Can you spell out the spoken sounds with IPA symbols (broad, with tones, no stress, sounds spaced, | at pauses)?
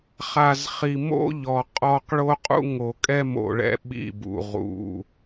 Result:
χ a˨ z χ i˨ m o̰˦ ʎ ɔ˨ qʼ ɔ˨ q ɭ o˦ qʼ ṵ˦ ŋ o˨ kʼ ɛ˦ m o̰˨ ɭ ɛ̰˨ ɓ ḭ˦˨ b ṵ˨ ʁ ṵ˨